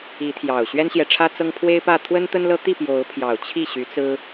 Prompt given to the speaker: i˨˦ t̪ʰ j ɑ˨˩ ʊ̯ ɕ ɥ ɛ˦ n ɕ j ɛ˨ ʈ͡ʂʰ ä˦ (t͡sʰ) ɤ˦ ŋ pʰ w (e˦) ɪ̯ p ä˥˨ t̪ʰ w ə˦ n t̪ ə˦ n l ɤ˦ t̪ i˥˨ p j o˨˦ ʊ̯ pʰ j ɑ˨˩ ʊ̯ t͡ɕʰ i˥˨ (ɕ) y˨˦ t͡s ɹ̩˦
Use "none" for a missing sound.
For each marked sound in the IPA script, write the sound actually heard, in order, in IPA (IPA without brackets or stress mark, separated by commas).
t͡s, e˦, ɕ